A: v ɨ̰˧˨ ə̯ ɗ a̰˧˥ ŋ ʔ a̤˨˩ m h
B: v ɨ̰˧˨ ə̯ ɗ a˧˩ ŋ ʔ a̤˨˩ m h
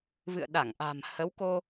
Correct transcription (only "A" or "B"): B